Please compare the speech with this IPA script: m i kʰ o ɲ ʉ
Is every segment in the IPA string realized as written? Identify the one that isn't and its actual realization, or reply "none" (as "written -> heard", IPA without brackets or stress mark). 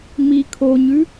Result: none